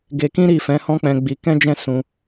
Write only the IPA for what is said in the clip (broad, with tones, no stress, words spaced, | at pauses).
ɡe˧kĩ˦ ɾi˦˨fɛ̃˨˦hɔ̃˦k͡pɛ̃˧ ɡ͡bi˧ kɛ̃˦d͡ʒɛ̃˦˨ sũ˧